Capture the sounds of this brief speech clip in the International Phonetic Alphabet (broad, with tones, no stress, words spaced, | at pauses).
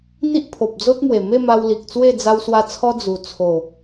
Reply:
n̪i˦ʔpʰo˨p̚d͡zo˦t̚mwe˨˩ me˥˧ma˧w li˨k̚t͡swe˥˧ d͡za˧wswa˧t͡sʰɔ˧ d͡zu˨˩ t͡sʰo˨˩